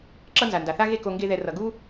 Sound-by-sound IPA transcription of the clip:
ǁ ʌ˦ n z a˨ n d a˨ θ a˦ ɣ e˦ k o˧ ŋ ɡ e˦ ð ɛ˧ r ʌ˨ ɡ u˦

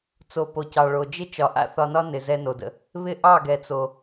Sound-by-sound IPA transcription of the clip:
t͡s o˨ p o˨ c ɑ˨ ɭ o˨ d͡ʒ ɪ˦ t͡ʃ ɒ˨ ʔ a̰˦ θ ɒ˧ n ɒ˦ n ɪ˨ z ɛ˧ n o˨ d ə̰˧ | β ɪ˦ ʔ ɑ˦˨ ɡ ɛ˨ t͡s o˨

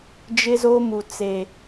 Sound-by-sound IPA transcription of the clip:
d͡ʒ ɪ˦ z o˦ m u˨ t͡s e˨

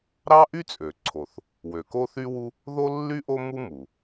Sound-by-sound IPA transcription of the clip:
ɾ ɑ˥ ʔ y˥ t͡sʼ ø˩ ǀʰ o˩ θ | w ø˩ k o˥ θ y˥ w u˥ | ð o˥ lː y˥ ʔ o˥ m u˥ m u˩

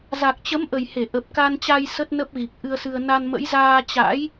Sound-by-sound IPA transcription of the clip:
z a˨˩ k̚ t͡ɕ ə˨˦ m ʔ ə˨˩ j h e˧˩ ʔ ə˨˩ p̚ k a˧ n t͡ɕ a˧ j s ə˦˥ t̚ n ə˦˥ p̚ ɣ i˨˩ k̚ ʔ ɨ˧ ə̯ s ɨ˧ ə̯ n a˧ n m ə̰˧˥ j z aː˧ t͡ɕ a̰˧˥ j

